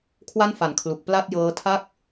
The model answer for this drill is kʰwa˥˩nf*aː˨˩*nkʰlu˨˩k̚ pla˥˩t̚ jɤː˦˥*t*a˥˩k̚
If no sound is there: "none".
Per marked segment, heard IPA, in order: a˨˩, tʰ

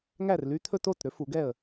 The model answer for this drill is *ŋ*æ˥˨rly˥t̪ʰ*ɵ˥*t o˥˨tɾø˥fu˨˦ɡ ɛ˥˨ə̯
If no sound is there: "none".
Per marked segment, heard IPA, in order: ŋ, ɵ˥

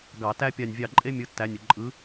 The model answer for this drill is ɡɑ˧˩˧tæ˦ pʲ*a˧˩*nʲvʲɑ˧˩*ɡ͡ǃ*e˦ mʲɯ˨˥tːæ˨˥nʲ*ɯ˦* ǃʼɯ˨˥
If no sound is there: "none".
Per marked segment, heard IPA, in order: a˧˩, ǃʼ, ɯ˩

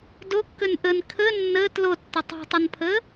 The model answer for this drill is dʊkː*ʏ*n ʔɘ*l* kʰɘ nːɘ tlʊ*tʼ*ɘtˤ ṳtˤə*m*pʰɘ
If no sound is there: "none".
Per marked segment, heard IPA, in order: ʏ, n, tː, n

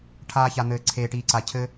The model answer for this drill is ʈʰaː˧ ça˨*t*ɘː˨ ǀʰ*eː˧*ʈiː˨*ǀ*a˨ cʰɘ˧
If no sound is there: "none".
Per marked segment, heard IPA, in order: n̪, eː˨, ǀ

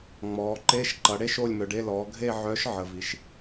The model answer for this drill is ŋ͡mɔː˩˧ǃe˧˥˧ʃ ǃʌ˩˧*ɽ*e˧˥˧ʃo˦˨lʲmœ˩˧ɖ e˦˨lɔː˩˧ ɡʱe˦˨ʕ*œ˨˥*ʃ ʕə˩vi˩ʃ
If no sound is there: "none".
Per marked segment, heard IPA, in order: ɽ, œ˨˥

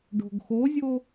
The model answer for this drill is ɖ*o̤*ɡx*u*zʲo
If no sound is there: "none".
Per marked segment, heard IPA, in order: o̤, o

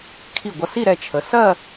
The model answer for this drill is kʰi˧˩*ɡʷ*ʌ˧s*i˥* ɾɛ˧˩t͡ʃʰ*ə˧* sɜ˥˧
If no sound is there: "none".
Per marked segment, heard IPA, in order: ɡʷ, i˥˧, ə˩˧

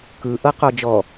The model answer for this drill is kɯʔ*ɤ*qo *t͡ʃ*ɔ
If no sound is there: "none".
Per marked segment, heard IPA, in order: ɤ, d͡ʒ

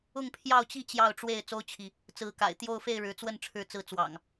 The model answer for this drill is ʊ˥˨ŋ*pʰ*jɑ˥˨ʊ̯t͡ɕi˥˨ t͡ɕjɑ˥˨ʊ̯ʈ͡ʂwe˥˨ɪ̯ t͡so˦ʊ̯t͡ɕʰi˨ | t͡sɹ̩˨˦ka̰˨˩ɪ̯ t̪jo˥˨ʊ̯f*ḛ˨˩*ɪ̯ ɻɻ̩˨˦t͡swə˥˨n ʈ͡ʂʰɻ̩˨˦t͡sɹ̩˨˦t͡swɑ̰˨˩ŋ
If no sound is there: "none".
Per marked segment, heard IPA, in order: pʰ, e˥˨

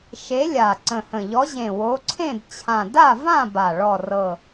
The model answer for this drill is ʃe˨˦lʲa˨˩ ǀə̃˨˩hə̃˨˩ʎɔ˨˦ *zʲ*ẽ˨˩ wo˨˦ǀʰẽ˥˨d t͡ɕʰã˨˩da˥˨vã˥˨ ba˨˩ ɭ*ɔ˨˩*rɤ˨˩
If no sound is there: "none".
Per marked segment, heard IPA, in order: ʑ, ɔ˨˩

